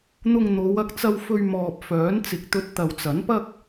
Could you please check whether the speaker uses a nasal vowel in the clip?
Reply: no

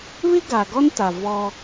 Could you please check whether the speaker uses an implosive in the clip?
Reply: no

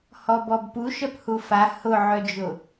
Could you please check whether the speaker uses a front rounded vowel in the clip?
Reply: yes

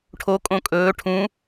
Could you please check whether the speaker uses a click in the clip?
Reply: no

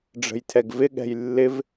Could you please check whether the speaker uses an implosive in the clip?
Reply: yes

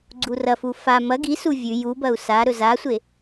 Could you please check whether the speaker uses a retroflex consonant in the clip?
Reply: no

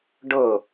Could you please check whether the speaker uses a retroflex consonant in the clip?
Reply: yes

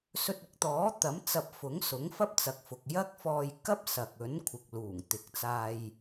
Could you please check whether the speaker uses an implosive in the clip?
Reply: no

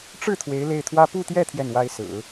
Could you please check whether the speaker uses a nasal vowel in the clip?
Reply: no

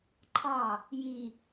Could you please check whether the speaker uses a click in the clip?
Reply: yes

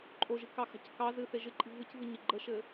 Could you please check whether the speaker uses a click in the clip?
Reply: yes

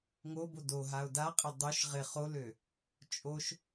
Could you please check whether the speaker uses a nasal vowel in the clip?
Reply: no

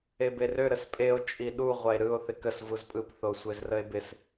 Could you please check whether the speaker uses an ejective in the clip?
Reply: yes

